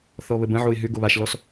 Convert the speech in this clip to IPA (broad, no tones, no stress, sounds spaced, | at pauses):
θ ɔ β ə b ə̃ ʕ o ɪ̯ ɦ ʏ ɡ o β a ʃ l ɔ s